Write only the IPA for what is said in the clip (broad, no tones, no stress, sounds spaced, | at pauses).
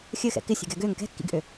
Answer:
xʲ ɘ x ɛ̰ k ɪ sʲ ɛ̤ ɡ ɛ ɡ ø ŋ k ɛ̤ kː ḭ ɡ ʔ ø